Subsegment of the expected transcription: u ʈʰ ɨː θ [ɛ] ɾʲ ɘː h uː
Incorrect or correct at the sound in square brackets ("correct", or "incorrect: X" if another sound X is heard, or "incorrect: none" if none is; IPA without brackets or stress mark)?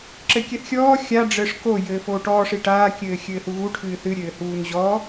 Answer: incorrect: ɨ